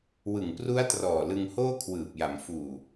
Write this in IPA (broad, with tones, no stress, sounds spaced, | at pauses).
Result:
w ɯ˨˩ ŋ p r u˦˥ a̯ t r ɔː˨˩ l ɯ˧ ŋ h oː˥˩ kʰ w ɯː˨˩ p̚ j a˩˦ m f uː˨˩